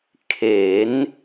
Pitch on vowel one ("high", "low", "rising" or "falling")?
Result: rising